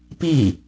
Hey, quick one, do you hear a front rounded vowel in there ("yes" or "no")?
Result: no